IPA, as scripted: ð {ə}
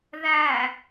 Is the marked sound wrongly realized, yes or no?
yes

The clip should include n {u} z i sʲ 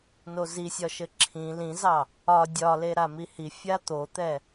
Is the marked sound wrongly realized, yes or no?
yes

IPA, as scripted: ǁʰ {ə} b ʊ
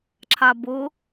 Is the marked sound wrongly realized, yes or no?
yes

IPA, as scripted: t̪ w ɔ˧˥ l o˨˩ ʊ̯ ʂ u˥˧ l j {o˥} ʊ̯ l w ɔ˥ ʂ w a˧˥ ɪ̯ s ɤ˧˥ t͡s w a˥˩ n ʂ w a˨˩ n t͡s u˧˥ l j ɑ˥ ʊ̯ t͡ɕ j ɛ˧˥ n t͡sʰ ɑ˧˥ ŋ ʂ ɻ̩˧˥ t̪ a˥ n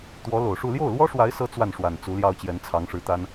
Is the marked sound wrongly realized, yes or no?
yes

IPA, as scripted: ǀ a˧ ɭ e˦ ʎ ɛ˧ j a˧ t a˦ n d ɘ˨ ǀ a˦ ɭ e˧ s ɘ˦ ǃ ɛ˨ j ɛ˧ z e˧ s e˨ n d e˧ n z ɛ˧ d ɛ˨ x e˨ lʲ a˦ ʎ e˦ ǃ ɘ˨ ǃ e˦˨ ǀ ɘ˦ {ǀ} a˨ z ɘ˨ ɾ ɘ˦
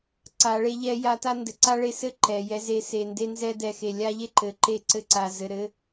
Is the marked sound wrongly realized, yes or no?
no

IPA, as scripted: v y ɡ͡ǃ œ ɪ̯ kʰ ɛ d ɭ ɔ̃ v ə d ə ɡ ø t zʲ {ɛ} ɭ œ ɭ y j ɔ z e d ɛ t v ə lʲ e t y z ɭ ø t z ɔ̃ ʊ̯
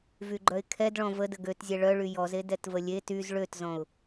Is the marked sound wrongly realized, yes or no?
no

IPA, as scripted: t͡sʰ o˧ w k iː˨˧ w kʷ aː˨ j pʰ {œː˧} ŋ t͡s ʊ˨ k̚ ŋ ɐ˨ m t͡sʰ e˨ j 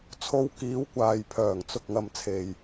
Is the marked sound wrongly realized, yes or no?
yes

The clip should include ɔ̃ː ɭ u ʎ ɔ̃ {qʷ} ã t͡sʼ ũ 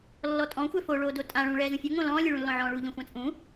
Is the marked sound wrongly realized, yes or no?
yes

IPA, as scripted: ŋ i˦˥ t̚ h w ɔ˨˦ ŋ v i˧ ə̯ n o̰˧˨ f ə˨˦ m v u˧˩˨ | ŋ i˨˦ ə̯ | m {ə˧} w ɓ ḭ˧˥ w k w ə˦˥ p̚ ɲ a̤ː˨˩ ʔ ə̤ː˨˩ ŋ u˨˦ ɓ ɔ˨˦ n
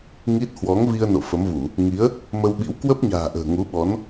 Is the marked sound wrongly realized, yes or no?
no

